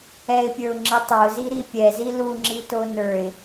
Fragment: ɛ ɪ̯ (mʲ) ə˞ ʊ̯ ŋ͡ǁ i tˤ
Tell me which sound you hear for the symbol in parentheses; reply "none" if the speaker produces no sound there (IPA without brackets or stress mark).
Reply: pʲ